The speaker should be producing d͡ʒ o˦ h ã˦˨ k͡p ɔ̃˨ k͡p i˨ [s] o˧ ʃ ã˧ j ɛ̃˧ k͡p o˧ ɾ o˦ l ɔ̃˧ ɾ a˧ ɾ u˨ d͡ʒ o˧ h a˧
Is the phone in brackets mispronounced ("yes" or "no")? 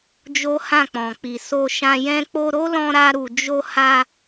no